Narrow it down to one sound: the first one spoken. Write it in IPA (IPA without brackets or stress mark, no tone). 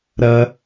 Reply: ɾ